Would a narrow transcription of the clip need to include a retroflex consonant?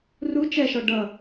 yes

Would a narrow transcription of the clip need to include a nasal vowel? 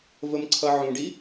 yes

